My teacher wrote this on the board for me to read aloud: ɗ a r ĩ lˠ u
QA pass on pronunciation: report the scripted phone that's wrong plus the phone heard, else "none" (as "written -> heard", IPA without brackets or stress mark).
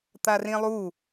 ɗ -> t̪